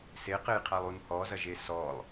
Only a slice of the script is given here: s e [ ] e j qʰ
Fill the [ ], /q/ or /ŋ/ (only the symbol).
q